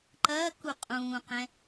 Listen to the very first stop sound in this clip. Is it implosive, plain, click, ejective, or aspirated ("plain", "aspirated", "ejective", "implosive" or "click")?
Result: click